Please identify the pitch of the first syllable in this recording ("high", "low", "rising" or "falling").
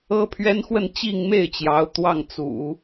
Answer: high